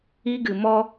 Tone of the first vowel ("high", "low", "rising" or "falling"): high